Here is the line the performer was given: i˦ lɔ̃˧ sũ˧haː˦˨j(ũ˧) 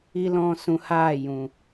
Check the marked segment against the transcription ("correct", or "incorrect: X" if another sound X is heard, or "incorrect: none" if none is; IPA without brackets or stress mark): incorrect: ũ˨